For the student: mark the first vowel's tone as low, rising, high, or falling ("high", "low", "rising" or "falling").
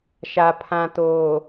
low